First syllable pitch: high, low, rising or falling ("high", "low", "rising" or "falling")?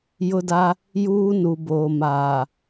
high